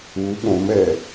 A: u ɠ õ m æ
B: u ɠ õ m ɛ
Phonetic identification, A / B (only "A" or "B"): B